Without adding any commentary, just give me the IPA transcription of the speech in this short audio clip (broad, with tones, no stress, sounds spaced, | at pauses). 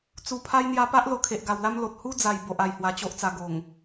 t͡s u˨˩ pʰ a˦ j n̪ j a˧ p a˦ ʔ l o˧ kʰ e˨ ʔ ɡ a˨˩ w l a˦ m l o˨ t̚ h u˦ d͡z a˨˩ j b o˨ ʔ a˨˩ j h w a˧ t͡ɕ o˦ ʔ t͡s a˧ ɡ o˨˩ ŋ